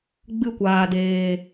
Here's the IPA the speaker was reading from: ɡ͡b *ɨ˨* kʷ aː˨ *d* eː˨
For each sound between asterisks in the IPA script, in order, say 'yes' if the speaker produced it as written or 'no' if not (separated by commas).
no, yes